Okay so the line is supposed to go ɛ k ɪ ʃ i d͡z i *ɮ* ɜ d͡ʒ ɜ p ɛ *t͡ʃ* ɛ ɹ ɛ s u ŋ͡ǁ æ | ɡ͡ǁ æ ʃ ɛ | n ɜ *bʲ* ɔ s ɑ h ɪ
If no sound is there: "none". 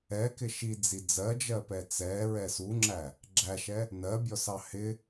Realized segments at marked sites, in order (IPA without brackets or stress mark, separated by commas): d͡z, t͡s, bʲ